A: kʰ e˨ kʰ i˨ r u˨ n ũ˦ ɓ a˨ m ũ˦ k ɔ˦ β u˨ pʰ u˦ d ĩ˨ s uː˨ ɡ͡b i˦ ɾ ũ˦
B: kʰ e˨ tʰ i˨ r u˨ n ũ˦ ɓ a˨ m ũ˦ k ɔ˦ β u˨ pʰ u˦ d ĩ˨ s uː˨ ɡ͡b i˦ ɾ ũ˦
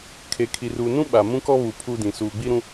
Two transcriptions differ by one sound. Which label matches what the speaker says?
A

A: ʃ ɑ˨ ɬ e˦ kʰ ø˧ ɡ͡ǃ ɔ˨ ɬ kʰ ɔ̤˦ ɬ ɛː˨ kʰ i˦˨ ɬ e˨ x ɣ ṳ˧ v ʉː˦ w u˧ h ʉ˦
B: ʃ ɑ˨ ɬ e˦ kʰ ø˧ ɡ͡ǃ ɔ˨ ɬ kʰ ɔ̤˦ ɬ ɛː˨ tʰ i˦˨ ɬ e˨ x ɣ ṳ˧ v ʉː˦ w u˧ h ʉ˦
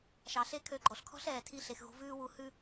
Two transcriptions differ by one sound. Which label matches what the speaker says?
B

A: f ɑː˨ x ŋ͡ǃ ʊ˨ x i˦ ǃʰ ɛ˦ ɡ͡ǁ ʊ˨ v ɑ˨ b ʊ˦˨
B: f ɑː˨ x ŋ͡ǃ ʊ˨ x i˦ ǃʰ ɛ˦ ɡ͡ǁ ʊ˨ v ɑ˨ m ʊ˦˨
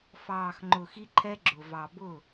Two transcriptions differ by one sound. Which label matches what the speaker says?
A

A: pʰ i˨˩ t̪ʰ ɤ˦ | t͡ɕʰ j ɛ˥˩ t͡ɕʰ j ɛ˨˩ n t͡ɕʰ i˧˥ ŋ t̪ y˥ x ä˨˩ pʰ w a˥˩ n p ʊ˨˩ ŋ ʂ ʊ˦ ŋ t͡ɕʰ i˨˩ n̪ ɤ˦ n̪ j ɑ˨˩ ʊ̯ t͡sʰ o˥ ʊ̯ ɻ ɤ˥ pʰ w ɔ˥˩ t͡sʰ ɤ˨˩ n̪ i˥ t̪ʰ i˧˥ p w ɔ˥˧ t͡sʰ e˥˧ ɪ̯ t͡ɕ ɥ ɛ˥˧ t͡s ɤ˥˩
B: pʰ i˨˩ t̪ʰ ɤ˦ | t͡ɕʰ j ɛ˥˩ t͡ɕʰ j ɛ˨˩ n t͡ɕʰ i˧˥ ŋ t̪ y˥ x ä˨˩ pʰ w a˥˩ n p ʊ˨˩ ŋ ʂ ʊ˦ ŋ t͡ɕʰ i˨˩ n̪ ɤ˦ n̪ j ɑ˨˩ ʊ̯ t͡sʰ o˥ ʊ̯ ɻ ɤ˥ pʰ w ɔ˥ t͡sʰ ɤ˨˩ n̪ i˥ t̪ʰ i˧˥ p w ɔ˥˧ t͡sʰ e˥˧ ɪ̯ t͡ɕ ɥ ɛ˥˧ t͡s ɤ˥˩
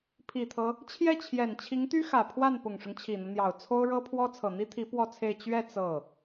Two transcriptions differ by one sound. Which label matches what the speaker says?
B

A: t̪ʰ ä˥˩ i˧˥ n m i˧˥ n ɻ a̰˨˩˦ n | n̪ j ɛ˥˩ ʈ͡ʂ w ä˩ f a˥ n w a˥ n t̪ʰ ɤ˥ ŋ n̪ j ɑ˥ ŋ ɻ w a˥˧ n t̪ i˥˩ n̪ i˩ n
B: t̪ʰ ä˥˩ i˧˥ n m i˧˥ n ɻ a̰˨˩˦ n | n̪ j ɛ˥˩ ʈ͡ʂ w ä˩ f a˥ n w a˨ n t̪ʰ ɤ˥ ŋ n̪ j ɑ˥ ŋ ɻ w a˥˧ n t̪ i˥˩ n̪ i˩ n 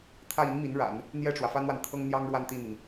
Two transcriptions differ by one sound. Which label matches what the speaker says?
B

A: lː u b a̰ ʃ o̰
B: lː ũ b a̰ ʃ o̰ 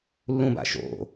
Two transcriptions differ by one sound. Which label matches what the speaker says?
B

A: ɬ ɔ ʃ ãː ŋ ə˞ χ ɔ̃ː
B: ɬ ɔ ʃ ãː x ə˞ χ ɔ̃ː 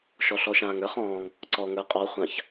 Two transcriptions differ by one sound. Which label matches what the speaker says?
A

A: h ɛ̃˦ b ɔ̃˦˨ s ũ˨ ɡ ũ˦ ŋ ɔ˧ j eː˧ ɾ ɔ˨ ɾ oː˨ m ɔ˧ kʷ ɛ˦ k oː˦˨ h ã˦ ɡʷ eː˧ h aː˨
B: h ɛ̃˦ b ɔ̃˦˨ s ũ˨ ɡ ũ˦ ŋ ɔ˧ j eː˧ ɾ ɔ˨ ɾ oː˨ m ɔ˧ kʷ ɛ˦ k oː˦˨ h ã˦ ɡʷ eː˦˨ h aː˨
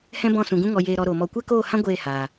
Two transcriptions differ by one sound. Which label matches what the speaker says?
B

